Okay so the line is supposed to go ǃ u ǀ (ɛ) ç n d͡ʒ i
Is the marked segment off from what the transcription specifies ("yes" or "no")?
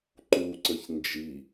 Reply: yes